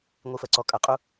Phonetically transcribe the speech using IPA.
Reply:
ŋʷ i f ɜ ǀ ɔ kʼ ɐ qʼ u

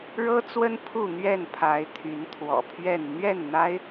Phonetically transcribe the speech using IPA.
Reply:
ɻ ɤ˦ t͡s w ə˦ n pʰ u˥˨ n̪ ɥ ɛ˥˨ n pʰ a˨˦ ɪ̯ t̪ʰ y˨˦ n t̪ʰ w ɔ̰˨˩ pʰ ɥ ɛ˥˨ n n̪ ɥ ɛ˥˨ n n̪ a˦ ɪ̯

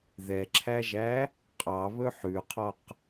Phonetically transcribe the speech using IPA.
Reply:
ð ɛ ǁʰ æ ʒ æ | qʼ ɑ β ɵ ħ ʉ qʰ ɔ q

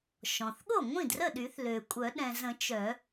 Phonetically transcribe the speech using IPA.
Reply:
ʃ ɔ̃˩ θ ɠ o˥˩ ŋʷ ĩ˥˩ d r ə˥˩ ɗ y˨˩˦ θ l ø˩ kʷʼ œ˨˩˦ ɗ ɛ̃˩ z ə̃˨˩˦ t͡ʃ œ˨˩˦

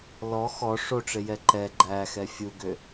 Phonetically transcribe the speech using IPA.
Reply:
l ɔ x ɔ ʂ o ʈ͡ʂ e j ɛ ǃ ɛ ɡ͡ǃ æ x ɛ fʲ u ɡ ø

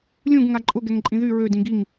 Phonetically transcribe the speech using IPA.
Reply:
lʲ ũ ɡ ŋ a ǃʼ ʊ ɡ ɛ ŋ ǃʼ ĩ ð y ɹ ø d ĩ ɡ i ŋ

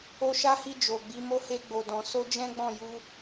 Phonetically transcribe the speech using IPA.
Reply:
o˧ ʃ a˦ h i˧ d͡ʒ o˨ ɡ͡b i˨˦ m o˦ h e˧ ɡ͡b o˨ d ɔ̃˨ s o˧ d͡ʒ ɛ̃˦ ɡ͡b ɔ̃˦˨ j u˧

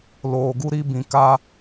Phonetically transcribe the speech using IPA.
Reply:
l oː˨ ɡ u˦ ɾ i˦ b ĩ˨ k a˦

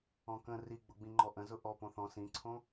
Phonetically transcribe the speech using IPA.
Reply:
ɔ̃ k ə̃ r i ɡ͡b ʊ ɡ͡b ĩ ŋ͡ǃ ɔ ʔ ə̃ z ʊ ʔ ɔ p õ θ ɔ̃ s ĩ ǀʰ õ

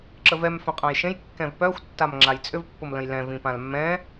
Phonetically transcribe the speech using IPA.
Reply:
ǁ ə v ɛ m f œ̃ qʼ ã j ʃ ẽ j kː ɛ̃ v p œ xʷ tː a m ŋ͡ǁ a j t͡sʼ ʏ v pː ʊ m l ə̃ j l ɛ̃ v ĩ p ã l mː ɛ̃

